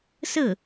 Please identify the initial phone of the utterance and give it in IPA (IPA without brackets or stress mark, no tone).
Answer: s